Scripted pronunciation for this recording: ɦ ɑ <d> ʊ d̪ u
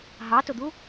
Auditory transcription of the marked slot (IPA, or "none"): t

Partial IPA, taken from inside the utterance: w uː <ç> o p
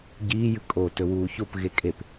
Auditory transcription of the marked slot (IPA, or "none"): ç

